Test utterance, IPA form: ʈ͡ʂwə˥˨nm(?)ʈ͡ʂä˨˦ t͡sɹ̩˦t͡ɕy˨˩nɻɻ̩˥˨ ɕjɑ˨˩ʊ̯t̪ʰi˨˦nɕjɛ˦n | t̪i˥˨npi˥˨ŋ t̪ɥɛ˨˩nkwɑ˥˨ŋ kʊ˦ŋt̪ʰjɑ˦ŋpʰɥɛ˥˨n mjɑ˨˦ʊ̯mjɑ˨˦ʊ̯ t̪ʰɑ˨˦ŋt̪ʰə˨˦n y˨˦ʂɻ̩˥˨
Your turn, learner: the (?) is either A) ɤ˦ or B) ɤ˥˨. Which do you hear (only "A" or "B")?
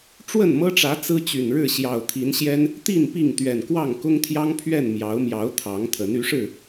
A